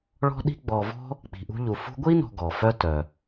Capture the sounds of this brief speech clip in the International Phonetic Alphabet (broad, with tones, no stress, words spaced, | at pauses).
ɭɔ̤˥ɗi̤˥ ɡ͡bɔ˨vɔ̤˥ | k͡pi̤˨ʔṳ˦ʎu˨fṳ˥ ɡʷi˥nɔ̤˨ ɡɔ˩fœ˥ tœ˩